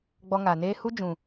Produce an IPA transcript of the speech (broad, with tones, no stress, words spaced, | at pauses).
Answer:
ɡ͡bɔ˧ŋa˨ neː˧hu˦ d͡ʒũ˨